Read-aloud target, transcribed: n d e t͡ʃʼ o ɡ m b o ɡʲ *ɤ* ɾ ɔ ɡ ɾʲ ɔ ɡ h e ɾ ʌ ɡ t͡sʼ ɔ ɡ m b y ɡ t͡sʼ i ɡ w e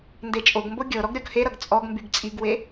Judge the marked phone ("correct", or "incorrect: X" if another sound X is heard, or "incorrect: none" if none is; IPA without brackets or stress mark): correct